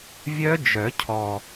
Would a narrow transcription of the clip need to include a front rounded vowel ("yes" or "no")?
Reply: yes